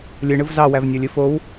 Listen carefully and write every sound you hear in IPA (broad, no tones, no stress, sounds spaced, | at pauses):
lʲ ɯ ɳ ɯ v z ɑ w æ v nʲ o lʲ ɯ f o w